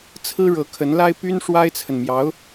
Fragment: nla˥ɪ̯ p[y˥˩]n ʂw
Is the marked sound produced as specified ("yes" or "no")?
no